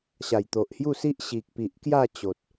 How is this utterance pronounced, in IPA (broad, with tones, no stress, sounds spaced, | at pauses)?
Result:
ɕ a˨˩ j t̪ o˨ ʔ h j u˥˧ s i˦ ʔ ɕ i˨ k̚ p i˨ ʔ k j a˥˧ t͡ɕ o˨ t̚